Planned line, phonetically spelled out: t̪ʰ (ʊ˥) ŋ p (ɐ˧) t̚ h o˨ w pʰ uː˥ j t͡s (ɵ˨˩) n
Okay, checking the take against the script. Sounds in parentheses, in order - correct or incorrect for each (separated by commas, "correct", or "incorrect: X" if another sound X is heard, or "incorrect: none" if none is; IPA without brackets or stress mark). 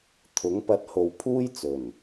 incorrect: ʊ˨˥, correct, correct